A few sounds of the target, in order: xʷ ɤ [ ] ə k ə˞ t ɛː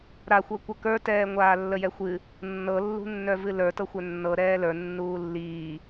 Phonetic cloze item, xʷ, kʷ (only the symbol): kʷ